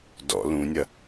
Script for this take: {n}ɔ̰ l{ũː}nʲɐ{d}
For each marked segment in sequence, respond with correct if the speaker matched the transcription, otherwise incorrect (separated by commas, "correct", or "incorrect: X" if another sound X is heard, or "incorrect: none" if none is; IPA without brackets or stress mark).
incorrect: d, incorrect: ũ, incorrect: none